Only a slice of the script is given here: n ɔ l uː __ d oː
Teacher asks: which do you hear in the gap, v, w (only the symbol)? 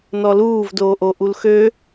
v